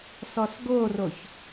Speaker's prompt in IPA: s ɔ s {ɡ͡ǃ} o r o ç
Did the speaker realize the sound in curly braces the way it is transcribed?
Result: no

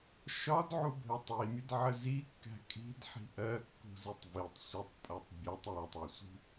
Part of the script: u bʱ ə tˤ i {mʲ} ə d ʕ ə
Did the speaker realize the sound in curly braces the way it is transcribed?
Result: yes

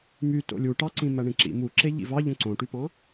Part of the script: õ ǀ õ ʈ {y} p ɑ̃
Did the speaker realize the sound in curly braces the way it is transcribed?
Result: yes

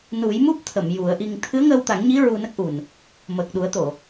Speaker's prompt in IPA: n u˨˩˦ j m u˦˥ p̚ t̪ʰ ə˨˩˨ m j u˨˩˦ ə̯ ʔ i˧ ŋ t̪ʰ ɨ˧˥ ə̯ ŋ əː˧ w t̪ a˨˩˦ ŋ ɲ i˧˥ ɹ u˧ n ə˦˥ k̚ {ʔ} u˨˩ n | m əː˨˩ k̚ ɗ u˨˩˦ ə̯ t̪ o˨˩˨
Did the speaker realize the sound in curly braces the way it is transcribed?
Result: yes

